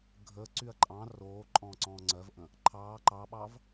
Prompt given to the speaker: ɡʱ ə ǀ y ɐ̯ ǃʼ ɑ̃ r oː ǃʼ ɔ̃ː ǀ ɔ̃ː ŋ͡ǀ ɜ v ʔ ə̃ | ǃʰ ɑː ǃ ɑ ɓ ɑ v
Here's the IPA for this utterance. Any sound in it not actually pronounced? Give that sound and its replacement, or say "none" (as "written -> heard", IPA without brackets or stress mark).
none